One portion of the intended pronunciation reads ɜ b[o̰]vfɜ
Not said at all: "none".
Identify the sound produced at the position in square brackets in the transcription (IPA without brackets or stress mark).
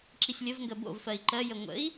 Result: o̰